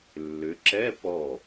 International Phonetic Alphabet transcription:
lː ʏ˩˧ ǁ ɛ˧˥˧ p ɔ˧˩

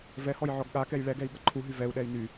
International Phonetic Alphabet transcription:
v ɛ h ɔ j ʕ ɔ ɡ ɠ a k ɛ j ɭ ɛ ɡ ɛ i̯ ɠ ʌ ǃʰ u ɦ y v ɛ u̯ ɗ ɛ i̯ n y

